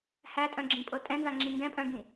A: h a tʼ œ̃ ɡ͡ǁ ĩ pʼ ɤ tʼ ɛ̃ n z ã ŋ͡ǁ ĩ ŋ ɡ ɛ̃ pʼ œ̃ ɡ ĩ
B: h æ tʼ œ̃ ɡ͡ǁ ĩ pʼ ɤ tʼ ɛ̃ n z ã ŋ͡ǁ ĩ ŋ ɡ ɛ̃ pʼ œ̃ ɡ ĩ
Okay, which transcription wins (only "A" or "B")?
B